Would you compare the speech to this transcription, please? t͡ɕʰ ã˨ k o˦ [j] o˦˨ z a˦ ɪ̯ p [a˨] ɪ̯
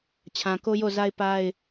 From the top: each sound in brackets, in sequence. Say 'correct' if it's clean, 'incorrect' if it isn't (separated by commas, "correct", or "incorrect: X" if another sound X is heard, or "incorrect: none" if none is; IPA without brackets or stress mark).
correct, incorrect: a˦